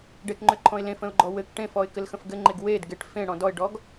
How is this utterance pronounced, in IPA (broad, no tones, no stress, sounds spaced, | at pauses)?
ɖ e k ŋ͡ǃ ʏ ǃʰ ɔ̃ ɪ̯ l ẽ f ə̃ ʊ̯ ɡ͡ǃ ɔ w ɘ k ʈ ẽ f ɔ ɪ̯ k ɘ l x ə̃ f ɡ ɘ ŋ͡ǃ e ɡ w e d ɡ e ʈ f ẽ ɽ ɔ̃ d ɔ ɪ̯ ɖ ɔ ɡ